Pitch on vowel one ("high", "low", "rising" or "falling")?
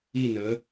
falling